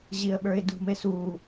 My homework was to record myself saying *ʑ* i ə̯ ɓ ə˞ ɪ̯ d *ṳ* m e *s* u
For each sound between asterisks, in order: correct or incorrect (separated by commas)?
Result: correct, correct, correct